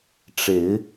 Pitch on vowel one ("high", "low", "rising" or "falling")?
rising